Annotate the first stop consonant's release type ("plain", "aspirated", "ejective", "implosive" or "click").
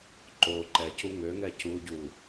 click